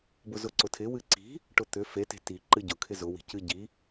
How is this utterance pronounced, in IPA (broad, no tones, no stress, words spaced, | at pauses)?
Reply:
bʊzʊǀʊtʰɪ wɨǀi̤ | ʈʊt̪ʏ fete̤ ti ǃɨɟʊ kʰɪzʊ wi̤cɨ ɟi